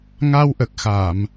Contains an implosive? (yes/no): no